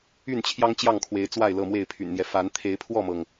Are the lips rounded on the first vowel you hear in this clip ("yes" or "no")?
yes